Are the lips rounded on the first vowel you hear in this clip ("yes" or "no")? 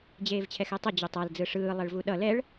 no